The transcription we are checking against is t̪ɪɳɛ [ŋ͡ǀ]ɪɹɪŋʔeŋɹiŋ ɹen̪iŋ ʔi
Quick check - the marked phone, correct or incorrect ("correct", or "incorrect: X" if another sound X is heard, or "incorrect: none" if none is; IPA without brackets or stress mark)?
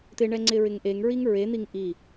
correct